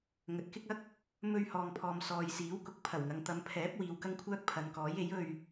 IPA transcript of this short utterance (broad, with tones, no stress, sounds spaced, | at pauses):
ŋ ɵ˨˥ t̚ k ɪ˥ k̚ ɐ˥ k̚ | m ɵ˧ ɥ h ɔː˧ ŋ pʰ ɔː˧ m s ɔː˨ j s iː˨˥ w k ʊ˨˥ k̚ pʰ ɐ˨˩ w ŋ ɐ˨˧ ŋ t̪ ɐ˨˧ m pʰ ɛː˨˥ p̚ w iː˨ w k ɐ˥ ŋ kʷʰ œː˥ k̚ pʰ ɐ˨ n k ɔː˨˥ j e˨˥ j ɵ˧ ɥ